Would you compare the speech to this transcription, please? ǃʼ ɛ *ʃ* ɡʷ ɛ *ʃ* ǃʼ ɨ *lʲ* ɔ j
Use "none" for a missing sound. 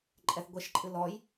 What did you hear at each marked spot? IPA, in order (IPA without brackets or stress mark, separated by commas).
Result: θ, ʃ, l